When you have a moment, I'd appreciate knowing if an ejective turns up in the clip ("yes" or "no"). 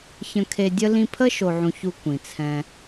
no